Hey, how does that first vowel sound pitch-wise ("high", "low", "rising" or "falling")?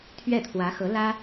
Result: falling